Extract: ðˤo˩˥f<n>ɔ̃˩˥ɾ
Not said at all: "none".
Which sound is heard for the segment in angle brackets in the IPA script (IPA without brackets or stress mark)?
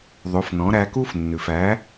n